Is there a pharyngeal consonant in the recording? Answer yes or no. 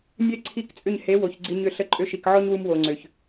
yes